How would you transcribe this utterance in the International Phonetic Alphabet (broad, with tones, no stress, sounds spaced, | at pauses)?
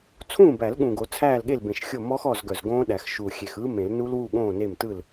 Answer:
t͡sʰ ũː˥˩ b æ˨˩˦ l ɠ ũ˨˩ ɡ o˨˩˦ t͡sʰ æː˥˩ l ɠ e˥˩ l b ẽ˨˩ ʃ xʲ o˥˩ m ɔ˦˥ x ɔː˥˩ z ɡ œ˨˩ z ɡ õː˦˥ ɗ æ˨˩˦ x ʃ u˨˩ xʲ e˨˩ x ɯ˦˥ m ẽ˨˩˦ l n u˦˥ l w u˥˩ ɠ õː˥˩ n e˥˩ m t ɯ˥˩ l